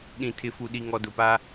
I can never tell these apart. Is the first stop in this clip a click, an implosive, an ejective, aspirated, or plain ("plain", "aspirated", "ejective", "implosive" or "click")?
implosive